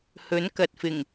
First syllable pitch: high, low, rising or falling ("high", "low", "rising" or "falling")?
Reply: rising